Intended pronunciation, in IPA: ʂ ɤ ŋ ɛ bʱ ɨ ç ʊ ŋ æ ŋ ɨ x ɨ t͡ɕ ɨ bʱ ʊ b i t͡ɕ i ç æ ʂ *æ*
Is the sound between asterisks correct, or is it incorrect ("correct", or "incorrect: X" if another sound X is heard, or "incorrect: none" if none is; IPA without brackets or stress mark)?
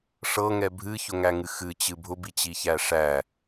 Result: correct